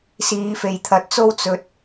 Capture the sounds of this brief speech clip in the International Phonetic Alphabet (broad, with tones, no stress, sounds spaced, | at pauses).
s iː˨˧ f e˨ j t̪ʰ ɐ˨˥ t̚ t͡s o˥ w t͡s ɵ˧ t̚